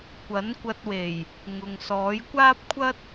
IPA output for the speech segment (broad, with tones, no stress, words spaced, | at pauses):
kʷɐ˨˥nkʷɐ˧t̚we˨˩j | ŋʊ˨ŋsɔː˨˥jkʷaː˥p̚kʷʰɐ˥t̚